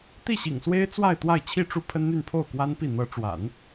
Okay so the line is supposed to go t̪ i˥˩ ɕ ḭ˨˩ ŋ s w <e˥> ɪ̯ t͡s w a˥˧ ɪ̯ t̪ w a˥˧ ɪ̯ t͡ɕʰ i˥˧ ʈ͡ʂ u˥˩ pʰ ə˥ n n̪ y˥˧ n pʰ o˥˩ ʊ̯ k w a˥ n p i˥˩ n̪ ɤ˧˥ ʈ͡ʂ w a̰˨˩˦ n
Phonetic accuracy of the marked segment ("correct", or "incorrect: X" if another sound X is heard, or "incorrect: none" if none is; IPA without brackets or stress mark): correct